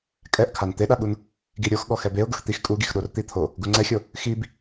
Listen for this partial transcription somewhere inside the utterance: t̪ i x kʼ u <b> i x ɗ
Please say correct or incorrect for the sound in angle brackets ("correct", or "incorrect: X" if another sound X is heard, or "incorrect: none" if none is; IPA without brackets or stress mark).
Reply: incorrect: ɡ